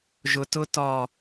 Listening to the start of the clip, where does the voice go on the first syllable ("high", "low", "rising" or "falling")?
low